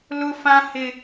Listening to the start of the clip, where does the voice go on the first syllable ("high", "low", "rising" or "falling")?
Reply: high